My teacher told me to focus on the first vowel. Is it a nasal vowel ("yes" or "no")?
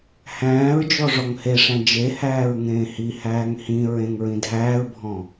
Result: yes